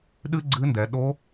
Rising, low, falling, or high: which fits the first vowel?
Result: high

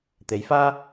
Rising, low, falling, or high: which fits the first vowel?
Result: rising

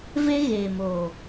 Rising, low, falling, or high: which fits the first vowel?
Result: high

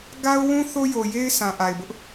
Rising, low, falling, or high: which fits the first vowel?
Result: high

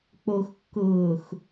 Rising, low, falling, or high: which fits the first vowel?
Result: low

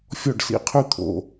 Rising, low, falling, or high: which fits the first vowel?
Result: falling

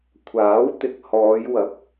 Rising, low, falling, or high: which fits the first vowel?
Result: rising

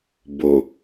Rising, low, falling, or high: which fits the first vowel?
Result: low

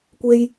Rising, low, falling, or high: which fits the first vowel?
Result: high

